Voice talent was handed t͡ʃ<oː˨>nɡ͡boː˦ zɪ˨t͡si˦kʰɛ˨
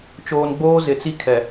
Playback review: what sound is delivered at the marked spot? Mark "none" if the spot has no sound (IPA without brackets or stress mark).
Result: oː˨